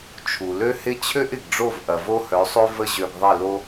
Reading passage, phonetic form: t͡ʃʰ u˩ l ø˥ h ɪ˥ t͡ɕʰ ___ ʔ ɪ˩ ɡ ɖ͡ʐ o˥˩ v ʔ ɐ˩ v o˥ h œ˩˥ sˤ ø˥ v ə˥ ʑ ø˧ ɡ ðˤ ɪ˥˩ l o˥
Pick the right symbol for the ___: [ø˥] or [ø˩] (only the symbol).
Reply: ø˥